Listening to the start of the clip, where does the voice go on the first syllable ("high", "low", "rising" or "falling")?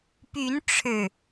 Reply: rising